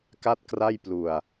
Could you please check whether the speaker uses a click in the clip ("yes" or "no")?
no